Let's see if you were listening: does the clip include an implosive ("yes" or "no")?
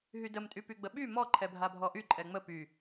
yes